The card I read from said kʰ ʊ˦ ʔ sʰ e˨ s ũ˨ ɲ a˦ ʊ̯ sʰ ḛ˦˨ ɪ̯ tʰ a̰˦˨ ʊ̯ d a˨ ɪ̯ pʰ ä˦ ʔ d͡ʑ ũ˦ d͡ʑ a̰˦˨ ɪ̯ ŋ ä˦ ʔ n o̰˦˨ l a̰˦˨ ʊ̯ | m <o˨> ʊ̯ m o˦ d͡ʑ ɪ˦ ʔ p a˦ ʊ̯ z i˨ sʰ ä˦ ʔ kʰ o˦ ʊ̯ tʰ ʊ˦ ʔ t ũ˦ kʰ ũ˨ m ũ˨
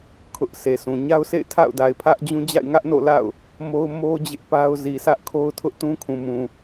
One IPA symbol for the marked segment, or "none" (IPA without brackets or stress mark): o˦